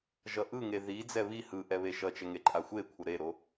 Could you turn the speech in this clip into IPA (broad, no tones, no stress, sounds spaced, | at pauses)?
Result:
ʒ ʌ ʔ ɯ ŋ e ð i d͡z ɛ β i h ɯ ʔ ɛ β e ʃ ʌ t͡ʃ ɛ ŋ e ǃʼ a xʷ e kʷʰ ʌ ɾ e ɾ o